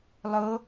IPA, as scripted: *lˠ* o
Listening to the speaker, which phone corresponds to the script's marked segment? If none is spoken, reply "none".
lˠ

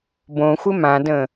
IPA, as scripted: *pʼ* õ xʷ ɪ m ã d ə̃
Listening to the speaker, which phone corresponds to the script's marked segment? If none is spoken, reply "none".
b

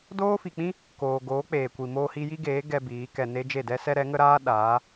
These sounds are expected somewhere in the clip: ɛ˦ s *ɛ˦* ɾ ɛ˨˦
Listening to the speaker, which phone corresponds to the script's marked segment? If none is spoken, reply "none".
ɛ˦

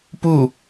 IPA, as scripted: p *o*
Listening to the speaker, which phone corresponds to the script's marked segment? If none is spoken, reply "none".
u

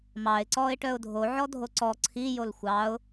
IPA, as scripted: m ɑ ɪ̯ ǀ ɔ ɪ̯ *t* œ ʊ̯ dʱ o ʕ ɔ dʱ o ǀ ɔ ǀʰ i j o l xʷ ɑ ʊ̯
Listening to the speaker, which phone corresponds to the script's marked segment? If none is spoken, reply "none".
ʈ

